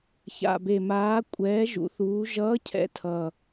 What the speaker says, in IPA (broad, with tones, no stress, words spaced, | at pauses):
ça̰˨˩be˨˩maː˨˥ kʷʼɛː˨˥ ʒṵ˩˧θuː˩˧ʒʌː˨˥cʰɛ̰˨˥ tʰʌ˨˩